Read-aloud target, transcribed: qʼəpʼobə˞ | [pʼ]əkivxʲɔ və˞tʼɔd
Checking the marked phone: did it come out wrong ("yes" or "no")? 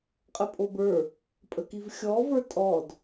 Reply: no